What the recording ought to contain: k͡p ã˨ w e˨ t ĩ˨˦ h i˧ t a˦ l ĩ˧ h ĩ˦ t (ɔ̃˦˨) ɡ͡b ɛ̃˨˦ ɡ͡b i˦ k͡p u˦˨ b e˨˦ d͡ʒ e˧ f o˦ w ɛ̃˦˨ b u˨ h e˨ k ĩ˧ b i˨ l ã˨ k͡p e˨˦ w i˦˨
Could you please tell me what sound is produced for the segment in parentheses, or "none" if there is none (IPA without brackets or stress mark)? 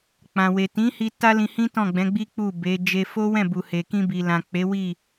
ɔ̃˦˨